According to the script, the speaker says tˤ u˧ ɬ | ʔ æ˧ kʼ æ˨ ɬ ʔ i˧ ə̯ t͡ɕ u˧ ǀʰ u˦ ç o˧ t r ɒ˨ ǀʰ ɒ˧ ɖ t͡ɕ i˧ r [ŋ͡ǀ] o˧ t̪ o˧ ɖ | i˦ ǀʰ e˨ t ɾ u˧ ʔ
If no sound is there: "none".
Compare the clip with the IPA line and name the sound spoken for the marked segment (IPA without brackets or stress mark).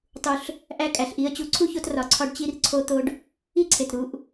ǀʰ